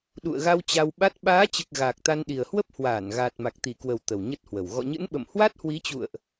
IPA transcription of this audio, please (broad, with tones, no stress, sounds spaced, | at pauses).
ɗ ṵ˧˨ ə̯ ɣ a˧ w t͡ɕ a˧ w ɓ a˦˥ t̚ ɓ aː˨˦ t͡ɕ ɨ˨˩ k̚ ɣ aː˨˩ k̚ t̪ a˧ n ɗ i˨˩ ə̯ h w ə˦˥ p̚ h w aː˧˩ n ɣ aː˨˩ t̚ m a˨˩ k̚ t̪ i˧˩ k w ə˨˩ w t̪ ə˨˩ w ɲ ə˦˥ t̚ h w ə˨˩ w ɣ ɔ̰˧˨ ɲ ɨ̰˧˥ n ɓ ə̰˧˨ m h w a˦˥ t̚ h w i˨˦ t͡ɕ ṵ˧˨ ə̯ ʔ